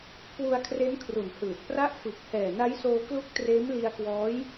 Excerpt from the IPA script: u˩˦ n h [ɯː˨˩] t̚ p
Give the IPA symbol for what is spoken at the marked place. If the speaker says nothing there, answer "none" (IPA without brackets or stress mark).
ɯː˨˩